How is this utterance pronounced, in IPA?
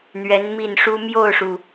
n̪ ɥ ɛ˧˥ n m i˥˩ n ʂ u˥ m j o˥˩ ʊ̯ ʂ u˩

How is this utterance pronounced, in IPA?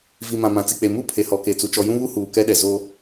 v i˨ m ã˨ m ã˨ t͡s i˨ k͡p e˨ m u˦ pʰ e˨ h ɔ˨ k e˨ t͡s u˨ t͡ʃ ɔ˨ j ũ˦ β u˦ h uː˨ k ɛ˦ ɗ ɛ˨ z o˦

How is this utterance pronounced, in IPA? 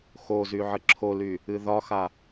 x o z y ʕ ə ǁʰ o l y | ɨ ð ɒ x a

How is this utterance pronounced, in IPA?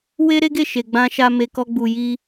w e˦ ɾ e˦ ɡ e˦˨ ʃ e˨ ɡ͡b ã˧ ʃ a˧ m e˨ k ɔ˧ ɡ͡b u˨ j i˧

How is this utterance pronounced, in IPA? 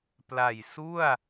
p l a˨˩ j s u˥˩ a̯

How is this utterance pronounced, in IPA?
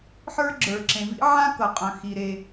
ħ ə˞˥ ɡ͡ǁ ə˞˩ ǁ ẽ˩ v ḭ˥ ʕ ã˥ k ɤ˩ qʼ œ̃˩ x i˩ ɾ e˩

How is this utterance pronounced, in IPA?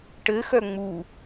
ʈ ɘ x œ ŋ͡m u

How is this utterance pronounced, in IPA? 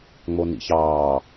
ŋ͡m o n ḭ ç ɑː

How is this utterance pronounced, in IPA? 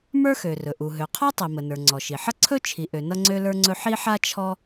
m ə˞˥ x ø˩ r ɵ˩ ʔ u˩ ɦ ø˩ qʰ ɔ˥ tˤ i˩ m ə˩ n ə˞˩ ŋ͡ǀ ɔ˩ ʃ i˩ ħ ʌ˥ ǀʰ ɵ˥ t͡ʃʰ i˩ ʔ ø˩ n ʌ˥ ŋ͡ǀ ø˥ l ə˞˥ ŋ͡ǀ ɵ˥ ħ i˥ ħ a˥ t͡ʃʰ ɔ˥

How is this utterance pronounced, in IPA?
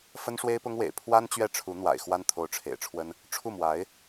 f ə˥ n ʂ w e˥ ɪ̯ p ʊ˥ ŋ w ḛ˨˩ ɪ̯ pʰ w a˥ n t͡ɕ ɥ ɛ˥˩ ʈ͡ʂʰ u˧˥ n̪ w a̰˨˩ ɪ̯ x w a˥ n t̪ʰ o˧˥ ʊ̯ ʈ͡ʂʰ ḛ˨˩ ɪ̯ ʈ͡ʂʰ w ə˥ n | ʈ͡ʂʰ u˥˩ m w a˧˥ ɪ̯

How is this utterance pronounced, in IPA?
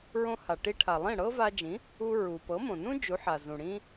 ɹ õ˧ h a˩ ʈ i˧ ʈʰ a˩ lˠ ĩ˥˩ ɽ ɤ˥ v a˧ d͡ʒ ĩ˩˥ | u˧ ɹ u˩ p ɤ˩˥ m õ˩ n ũ˥ d͡ʒ u˩˥ ħ a˩ z ũ˩ ɽ ĩ˧

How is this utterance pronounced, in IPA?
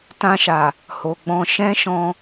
t ã˧ ʃ a˨ | h o˨ ɡ͡b ɔ̃˧ ʃ ɛ̃˦ ʃ ɔ̃˧

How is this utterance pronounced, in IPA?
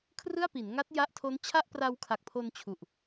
kʰ r ɯ˥˩ a̯ p i˩˦ n ŋ a˦˥ t̚ j a˦˥ ʔ tʰ o˦˥ n t͡ɕʰ a˥˩ ʔ p r a˧ w kʰ a˨˩ k̚ pʰ o˧ n t͡ɕʰ u˨˩ ʔ

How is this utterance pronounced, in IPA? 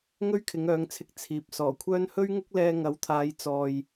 ŋ ɵ˥ ɥ kʰ ɪ˨˧ ŋ œː˨˧ ŋ t͡sʰ ɪ˧ k̚ t͡sʰ iː˨ p̚ s ɔː˨˩ kʷʰ œː˥ n h ɵ˥ ɥ ŋ ʊ˥ k̚ l ɛː˧ ŋ ɐ˨˥ w t̪ʰ aː˨˧ j t͡s ɔː˧ j

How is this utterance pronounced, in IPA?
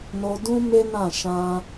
n o˧ d ũ˦ m e˦ n ã˦˨ ʃ ã˧

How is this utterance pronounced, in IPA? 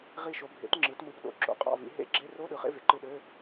ʁ i˧˩ ʃ o˩˧ bʱ ḛ˩˥ t ŋ͡ǁ ɯ˩˧ t m ɯ˩˧ p ɗ o̰˩˥ ǁ o̰˩˥ qʼ ɑ̰˧˩ v ḭ˩˧ ɦ ḛ˧˥˧ ɡ͡ǁ e˧˥˧ r o˧˥˧ ɗ ɯ˩˧ χ ḛ˧˥˧ v e˩˧ ǃ ɯ˧˩ ɗ ø˧˥˧

